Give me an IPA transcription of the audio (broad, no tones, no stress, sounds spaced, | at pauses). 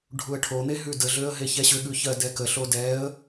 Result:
ɖʱ u ə̯ ʈʰ o n̪ e ɦ ʉ d ə ɮ ø ə̯ ɦ e ç ɛ ɕ ʏ ɠ ʉ ç ɜ d ɛ k ə ɬ o d ɛ ə̯